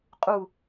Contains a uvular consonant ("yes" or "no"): yes